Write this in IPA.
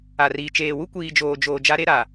a˨riː˨ t͡ʃeː˨wu˦ kʷiː˨d͡ʒoː˨d͡ʒoː˨ d͡ʒa˦ɾe˦ ɾa˨

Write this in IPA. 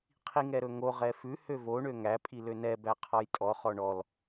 qʰiŋɛɾɵŋo ʁɛfʉ høvo ɳøŋæ pʼilønɛ bæqʰɔjtʼɔ χɔɳɔl

